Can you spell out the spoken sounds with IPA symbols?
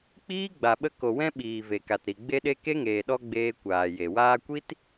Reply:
k͡p iː˦ ɡ͡b a˨ ɓ ə˧ k o˨ w ɛ̃˧ ɓ iː˨ v e˨ k a˨ t ɾ i˨ ɡ͡b e˧ ɗ e˧ k e˦ ŋ eː˨ ɗ ɔ˦ ɡ͡b eː˧ kʷ aː˨ j e˨ w aː˧ kʷ i˦ t

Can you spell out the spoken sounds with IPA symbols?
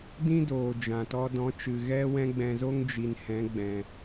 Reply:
d ĩ˦ d oː˨ d͡ʒ ã˨ t ɔ˧ d ɔ̃˨˦ t͡ʃ ɨ˨ ɣ ɛ˦ w ɛ̃˦ ɡ͡b ɛ̃˧ z o˦ ŋ d͡ʒ i˨ n h ɛ̃˨˦ ɡ͡b ɛ̃˨

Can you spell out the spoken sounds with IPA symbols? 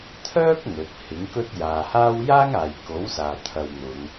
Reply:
t̪ʰ œː˥ k̚ ŋ ɵ˨˥ t̚ h ɪ˨˥ ŋ k ɵ˥ t̚ j aː˨ h aː˥ w j aː˥ ŋ aː˨ j k o˨˥ w s aː˨ t̪ʰ ɐ˧ w n̪ ʊ˨˧ ŋ

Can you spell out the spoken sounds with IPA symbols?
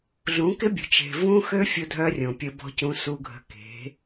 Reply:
ɮ ũ˨˦ k ɪ˦ bʲ ə̤˨ t͡ʃ e̤˨ v ũ˦ x ø˦ fʲ ʊ˦ dʱ œ˦ rʲ õ˨ pʲ ə˦ b ɔ̤˦ c ũ˦ s u˦ ɡʱ ə̤˦ k e̤˨˦

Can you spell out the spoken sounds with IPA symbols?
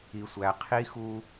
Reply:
i˨ sʷ æ˨ qʰ i˦ x u˦

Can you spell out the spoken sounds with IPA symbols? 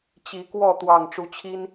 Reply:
t͡ɕ i˨˦ k w ɔ˥˨ t̪ w ɑ˨˩ ŋ ʈ͡ʂ u˨˦ t͡ɕʰ i˦ n

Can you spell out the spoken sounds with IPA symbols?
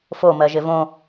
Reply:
f o m ɜ ʒ ɪ v õ

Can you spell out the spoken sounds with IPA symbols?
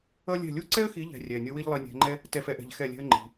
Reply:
ʌ˥ lʲ ɛ̤˥˩ lʲ u˥ ǀ ɛ˥ ə̯ x i˨˦ ʎ ɛ̤˨˦ rʲ ɛ˩˧˩ nʲ ʌ˥ w i˥ ʎ lˠ i˨˦ nʲ ɛ̤˨˦ ŋ͡ǃ ɛ˥ | t ɛ˥˩ f ɛ˥ ʔ ɛ̤˨˦ ʎ x ɛ˥˩ lʲ ɛ̤˥ ə̯ ŋ͡ǃ i̤˩˧˩

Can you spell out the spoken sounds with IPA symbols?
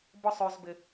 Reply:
b ɔ˧ sˤ ø˨ z b ɪ˨

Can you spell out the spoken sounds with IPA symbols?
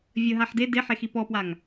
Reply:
vʲ ə ɦ a ħ d e d e ħ e x i p ɔ p w a ŋ

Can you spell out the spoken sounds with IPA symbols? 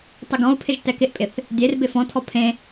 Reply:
tˤ ɪ ɡ ɔ̃ u̯ pʰ ɪ ʒ t ɛ k ɪ ʔ pʼ ɪ θ | dʲ e r b ɪ f ɔ̃ tʰ ɔ pʰ ẽ

